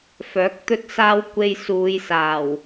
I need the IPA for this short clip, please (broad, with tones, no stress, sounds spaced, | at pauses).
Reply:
f œː˨˥ k̚ t̪ ɵ˥ t̚ s aː˥ w kʷ e˧ j s uː˨˧ j s aː˨˩ w